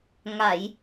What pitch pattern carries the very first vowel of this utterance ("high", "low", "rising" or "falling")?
low